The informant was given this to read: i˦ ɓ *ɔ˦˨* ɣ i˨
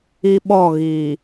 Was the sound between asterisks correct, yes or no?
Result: yes